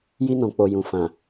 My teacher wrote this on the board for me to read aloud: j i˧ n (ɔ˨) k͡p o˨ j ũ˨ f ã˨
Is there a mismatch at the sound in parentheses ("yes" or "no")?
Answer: yes